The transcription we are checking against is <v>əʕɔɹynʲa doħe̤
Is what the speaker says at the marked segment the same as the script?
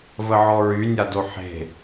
yes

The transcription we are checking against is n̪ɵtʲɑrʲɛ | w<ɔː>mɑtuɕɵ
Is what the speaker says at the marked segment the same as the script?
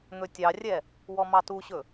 no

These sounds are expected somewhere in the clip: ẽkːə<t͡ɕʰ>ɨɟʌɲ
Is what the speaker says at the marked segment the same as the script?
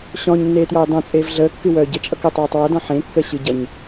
no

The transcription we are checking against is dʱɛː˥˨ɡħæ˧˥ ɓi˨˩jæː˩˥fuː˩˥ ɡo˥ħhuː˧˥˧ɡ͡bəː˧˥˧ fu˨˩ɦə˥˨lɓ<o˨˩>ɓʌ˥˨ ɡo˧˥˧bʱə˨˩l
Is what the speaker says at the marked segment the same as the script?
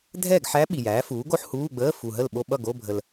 no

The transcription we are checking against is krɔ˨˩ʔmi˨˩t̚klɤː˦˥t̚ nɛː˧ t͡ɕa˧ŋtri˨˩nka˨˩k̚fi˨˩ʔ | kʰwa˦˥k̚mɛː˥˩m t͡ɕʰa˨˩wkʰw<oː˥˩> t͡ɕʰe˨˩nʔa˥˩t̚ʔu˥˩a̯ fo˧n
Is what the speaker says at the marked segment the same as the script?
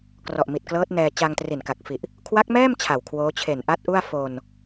no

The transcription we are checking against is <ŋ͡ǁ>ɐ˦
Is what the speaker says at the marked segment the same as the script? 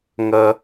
no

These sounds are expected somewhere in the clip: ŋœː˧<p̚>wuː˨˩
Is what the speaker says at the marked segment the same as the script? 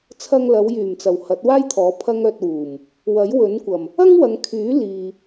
no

